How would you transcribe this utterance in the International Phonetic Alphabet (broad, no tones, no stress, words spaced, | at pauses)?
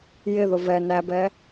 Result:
jɪðʊ vɛ næbɛ